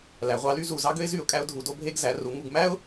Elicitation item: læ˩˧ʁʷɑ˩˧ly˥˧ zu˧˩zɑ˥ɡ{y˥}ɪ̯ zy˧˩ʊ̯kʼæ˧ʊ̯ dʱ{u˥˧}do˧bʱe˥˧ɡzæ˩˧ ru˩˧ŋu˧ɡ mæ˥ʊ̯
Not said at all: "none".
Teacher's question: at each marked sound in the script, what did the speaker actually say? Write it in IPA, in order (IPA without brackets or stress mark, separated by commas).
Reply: ø˥, u˩˧